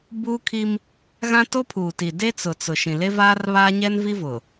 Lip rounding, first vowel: rounded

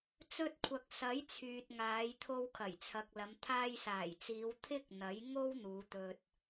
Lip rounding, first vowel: rounded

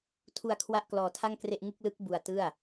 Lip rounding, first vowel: rounded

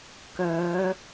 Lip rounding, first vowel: rounded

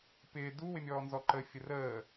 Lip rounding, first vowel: unrounded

